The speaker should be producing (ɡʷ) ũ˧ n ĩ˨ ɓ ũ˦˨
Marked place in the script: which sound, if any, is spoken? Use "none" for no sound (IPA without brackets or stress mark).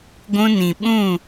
ɡʷ